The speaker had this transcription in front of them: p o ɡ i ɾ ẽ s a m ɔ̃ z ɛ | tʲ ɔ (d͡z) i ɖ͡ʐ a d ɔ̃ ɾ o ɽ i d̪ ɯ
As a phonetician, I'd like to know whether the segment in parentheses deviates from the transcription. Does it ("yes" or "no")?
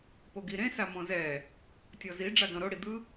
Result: yes